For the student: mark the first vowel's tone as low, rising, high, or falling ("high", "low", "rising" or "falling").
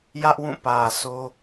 high